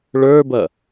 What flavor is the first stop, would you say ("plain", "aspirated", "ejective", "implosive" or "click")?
plain